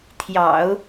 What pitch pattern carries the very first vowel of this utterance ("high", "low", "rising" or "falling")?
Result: low